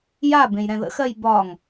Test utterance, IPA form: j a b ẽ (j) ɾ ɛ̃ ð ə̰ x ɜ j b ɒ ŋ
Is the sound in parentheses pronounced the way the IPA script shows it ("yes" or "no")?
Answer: yes